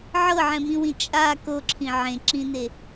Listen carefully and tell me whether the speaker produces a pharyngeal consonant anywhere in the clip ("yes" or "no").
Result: yes